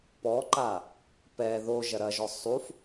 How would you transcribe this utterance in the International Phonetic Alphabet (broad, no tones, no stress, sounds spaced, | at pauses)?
p ɔ ǃ a | p ɛ ð o ʒ ɐ ɾ ɐ ʒ ɔ sˤ u f